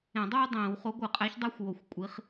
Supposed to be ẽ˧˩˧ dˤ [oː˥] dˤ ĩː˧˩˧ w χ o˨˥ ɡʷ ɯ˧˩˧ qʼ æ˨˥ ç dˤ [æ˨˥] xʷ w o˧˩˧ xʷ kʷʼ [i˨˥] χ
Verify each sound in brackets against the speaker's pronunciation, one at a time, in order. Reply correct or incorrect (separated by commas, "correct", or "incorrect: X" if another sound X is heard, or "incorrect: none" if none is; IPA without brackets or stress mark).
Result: correct, incorrect: æ˥, correct